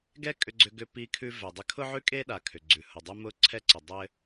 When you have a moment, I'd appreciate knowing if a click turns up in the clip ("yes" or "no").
yes